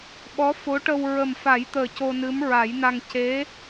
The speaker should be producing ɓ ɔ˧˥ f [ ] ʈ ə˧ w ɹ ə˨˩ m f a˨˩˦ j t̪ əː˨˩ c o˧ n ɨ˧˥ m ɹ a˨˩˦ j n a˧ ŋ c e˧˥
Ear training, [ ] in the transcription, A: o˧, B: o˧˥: B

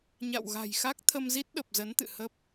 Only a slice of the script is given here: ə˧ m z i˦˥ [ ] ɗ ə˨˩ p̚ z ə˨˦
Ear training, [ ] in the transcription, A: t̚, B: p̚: A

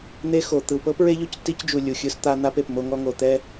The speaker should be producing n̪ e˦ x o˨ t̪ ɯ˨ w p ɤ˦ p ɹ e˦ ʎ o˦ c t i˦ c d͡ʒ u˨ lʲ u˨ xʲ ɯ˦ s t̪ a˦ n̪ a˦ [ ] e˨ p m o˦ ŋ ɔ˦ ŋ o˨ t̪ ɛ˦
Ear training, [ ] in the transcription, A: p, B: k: A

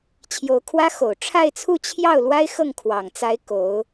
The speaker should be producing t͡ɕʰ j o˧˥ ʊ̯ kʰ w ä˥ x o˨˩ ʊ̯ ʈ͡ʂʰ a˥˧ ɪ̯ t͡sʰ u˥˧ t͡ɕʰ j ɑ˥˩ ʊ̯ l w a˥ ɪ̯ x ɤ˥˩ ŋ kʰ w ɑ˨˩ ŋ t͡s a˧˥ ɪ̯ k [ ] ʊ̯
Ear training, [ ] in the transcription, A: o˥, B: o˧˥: B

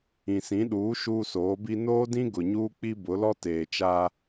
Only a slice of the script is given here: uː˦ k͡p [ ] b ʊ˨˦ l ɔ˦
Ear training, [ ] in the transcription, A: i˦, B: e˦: A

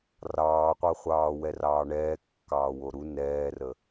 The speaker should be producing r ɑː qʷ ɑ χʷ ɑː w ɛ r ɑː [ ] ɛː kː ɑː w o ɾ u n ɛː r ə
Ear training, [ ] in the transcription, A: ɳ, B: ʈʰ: A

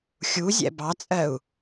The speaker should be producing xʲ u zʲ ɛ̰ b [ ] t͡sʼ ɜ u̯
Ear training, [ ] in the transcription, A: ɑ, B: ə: A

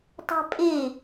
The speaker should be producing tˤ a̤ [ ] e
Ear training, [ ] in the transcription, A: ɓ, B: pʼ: B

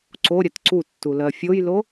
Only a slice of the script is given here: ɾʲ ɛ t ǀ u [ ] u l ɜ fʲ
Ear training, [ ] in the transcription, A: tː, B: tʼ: A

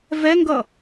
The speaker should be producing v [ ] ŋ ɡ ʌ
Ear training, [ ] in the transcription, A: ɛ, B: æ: A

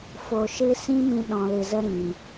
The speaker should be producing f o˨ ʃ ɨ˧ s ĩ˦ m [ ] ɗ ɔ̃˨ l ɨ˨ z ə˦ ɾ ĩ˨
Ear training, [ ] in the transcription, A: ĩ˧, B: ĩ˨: A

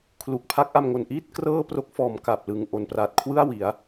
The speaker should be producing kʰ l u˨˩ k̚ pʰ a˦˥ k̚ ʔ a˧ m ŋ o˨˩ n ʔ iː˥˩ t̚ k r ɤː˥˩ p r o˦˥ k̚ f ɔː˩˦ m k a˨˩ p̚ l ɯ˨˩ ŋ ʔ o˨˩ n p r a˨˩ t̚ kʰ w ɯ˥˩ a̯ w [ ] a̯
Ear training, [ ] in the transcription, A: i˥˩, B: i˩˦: B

